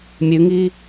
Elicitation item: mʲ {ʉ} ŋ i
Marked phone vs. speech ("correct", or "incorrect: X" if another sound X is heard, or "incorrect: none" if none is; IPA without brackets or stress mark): correct